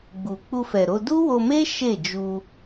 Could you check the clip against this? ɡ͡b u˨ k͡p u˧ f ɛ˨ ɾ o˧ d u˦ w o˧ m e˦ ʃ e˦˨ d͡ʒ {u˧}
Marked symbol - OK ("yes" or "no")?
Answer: yes